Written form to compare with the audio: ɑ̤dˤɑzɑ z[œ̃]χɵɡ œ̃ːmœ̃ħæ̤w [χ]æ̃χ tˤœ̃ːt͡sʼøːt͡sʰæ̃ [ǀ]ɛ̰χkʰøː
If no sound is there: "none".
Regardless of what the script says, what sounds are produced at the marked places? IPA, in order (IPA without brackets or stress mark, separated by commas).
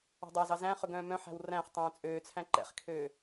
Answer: æ̃, r, ǃ